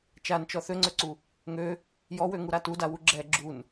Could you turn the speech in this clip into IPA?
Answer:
t͡ʃant͡ʃɔ θøŋ͡ǀøǀu | ŋø | jɔwøŋuɾa tudawu ɡ͡ǁɛ ɡ͡ǁun

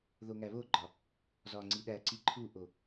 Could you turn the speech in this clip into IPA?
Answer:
ðoŋæβoɡ͡ǃɒ | zɒŋ͡ǀiɗæǀi ǃʰuʔo

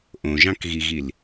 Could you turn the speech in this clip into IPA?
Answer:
ʔõʒɑ̃kɣiɣil

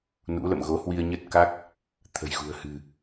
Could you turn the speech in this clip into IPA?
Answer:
nṵ˧˥lə̰˧˨m ɣo˨˦hwi˧ə̯ ɲə˦˥t̚ka˦˥k̚ | t̪ʰə̤˨˩jɣṳ˨˩ə̯ hɨ̤˨˩

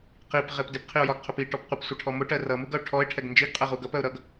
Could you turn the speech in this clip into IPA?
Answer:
qipʁɪp dɪpqʰiʊ̯jɒɡqʰʊp iʈɔp qʷɪpsʷɑʈʰɔ mʊʈɜ rʌmuɡʌʊ̯ ʈʰɔɪ̯ʈʰɛɡ nd͡ʒiɡqʼɜʁuɡ ʌpɜʊ̯ ɾʌɡ

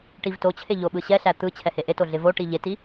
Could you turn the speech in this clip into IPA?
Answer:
ʈivtot͡ɕʰe ʎoɓɯɕɛɬæ t̪ɯ t͡ɕʰɛheʔeto ɮɪvoʈi ʎeti

